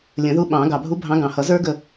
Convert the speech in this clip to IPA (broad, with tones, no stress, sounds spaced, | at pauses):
lʲ ə̃˨˩˦ ð u˧˥ ɓ ɑ̃˨˩˦ ɡ ɑ˨˩ bʱ u˧˥ bʱ ɑ̃˧˥ ɡ ɑ̃˨˩ h ʌ˨˩˦ z ə˞˥ ɡ ə˦˨